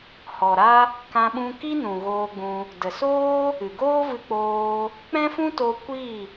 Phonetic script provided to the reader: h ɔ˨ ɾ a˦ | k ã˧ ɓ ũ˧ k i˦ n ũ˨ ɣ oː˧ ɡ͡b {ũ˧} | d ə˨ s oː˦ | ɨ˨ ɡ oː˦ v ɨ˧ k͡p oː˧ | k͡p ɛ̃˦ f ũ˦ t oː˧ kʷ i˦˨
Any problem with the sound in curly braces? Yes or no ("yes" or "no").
no